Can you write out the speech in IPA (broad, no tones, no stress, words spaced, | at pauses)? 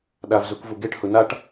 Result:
ɗavzukvuɡeʈ hunaʈ